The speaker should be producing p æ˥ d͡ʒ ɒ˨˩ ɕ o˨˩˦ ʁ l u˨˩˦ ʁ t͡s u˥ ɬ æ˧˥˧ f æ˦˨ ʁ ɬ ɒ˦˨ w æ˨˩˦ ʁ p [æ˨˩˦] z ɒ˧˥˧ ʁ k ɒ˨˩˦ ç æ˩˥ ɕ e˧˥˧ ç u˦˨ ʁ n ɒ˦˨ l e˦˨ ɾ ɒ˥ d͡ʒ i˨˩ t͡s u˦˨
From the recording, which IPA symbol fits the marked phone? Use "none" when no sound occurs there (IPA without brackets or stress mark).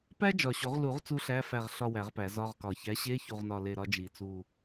æ˨˩˦